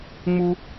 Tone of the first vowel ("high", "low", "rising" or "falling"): high